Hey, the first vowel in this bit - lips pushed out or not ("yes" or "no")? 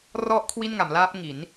yes